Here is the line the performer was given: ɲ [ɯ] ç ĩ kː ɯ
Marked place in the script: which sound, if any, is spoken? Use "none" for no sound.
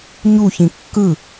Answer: u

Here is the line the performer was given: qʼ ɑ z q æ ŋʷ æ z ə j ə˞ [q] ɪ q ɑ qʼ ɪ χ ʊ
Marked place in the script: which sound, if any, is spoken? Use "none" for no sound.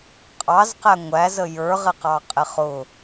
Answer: ʁ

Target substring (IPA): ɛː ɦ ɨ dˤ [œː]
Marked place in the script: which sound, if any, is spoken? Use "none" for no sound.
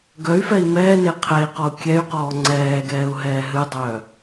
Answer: œː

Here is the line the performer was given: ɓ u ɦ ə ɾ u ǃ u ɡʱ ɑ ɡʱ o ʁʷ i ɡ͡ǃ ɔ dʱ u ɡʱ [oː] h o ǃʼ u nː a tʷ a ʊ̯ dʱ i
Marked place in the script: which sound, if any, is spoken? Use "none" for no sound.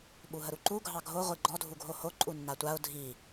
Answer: o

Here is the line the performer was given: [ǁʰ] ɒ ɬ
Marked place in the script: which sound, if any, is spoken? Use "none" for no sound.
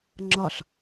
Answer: ŋ͡ǁ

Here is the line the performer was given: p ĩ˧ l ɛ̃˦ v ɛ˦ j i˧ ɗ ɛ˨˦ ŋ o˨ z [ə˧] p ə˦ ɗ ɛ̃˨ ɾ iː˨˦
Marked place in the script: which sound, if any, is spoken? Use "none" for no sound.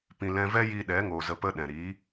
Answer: ə˧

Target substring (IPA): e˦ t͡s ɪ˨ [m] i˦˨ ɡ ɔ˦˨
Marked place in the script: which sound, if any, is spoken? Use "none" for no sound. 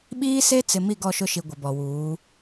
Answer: m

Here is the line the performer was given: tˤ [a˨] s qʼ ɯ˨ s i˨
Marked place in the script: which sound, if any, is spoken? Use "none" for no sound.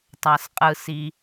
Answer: a˨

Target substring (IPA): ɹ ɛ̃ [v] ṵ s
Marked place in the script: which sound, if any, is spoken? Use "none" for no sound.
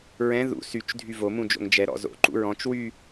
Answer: ð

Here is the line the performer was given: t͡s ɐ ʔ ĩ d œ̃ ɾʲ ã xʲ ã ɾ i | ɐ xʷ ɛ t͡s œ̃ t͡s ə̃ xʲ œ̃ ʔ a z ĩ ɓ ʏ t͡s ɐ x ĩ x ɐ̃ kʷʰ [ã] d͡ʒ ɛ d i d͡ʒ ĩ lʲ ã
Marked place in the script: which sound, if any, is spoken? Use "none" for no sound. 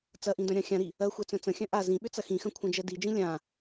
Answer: ɐ̃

